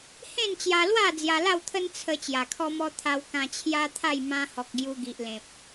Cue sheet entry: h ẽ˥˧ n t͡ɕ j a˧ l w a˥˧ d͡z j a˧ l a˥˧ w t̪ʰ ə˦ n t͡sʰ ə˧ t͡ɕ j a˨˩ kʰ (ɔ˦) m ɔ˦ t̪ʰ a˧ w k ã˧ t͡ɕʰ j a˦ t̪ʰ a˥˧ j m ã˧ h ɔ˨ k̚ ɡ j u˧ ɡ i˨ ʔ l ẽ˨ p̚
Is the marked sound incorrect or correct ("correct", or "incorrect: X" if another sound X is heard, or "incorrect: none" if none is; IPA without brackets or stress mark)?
correct